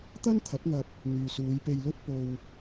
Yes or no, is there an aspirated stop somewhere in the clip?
yes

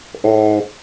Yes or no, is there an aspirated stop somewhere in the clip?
no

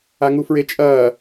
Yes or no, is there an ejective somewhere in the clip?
yes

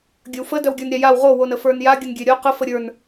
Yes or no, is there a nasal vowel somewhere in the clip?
no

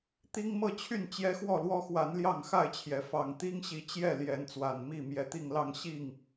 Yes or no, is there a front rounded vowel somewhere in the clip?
yes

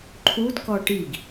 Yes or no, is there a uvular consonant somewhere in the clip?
no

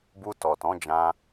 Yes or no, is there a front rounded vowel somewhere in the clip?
no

